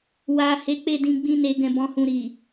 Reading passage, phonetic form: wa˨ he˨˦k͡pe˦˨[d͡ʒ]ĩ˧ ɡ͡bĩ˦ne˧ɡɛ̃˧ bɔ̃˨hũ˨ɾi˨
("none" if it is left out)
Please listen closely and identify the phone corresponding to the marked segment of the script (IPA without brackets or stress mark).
d